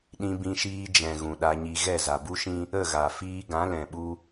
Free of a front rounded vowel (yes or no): yes